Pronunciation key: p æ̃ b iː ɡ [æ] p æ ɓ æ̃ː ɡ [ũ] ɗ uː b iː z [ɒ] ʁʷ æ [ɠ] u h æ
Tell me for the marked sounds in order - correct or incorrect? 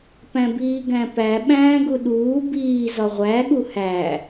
incorrect: æ̃, incorrect: u, correct, correct

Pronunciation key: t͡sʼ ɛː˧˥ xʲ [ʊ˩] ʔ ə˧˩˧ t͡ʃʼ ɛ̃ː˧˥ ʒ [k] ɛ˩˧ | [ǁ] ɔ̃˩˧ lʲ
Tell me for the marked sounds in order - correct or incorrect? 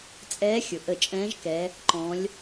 correct, correct, incorrect: ǃ

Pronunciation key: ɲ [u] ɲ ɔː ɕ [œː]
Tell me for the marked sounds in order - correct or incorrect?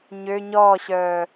incorrect: ø, correct

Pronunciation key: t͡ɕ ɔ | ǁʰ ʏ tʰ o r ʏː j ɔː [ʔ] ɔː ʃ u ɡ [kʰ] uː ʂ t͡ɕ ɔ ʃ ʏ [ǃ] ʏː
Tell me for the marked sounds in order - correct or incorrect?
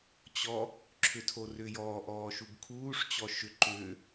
correct, correct, correct

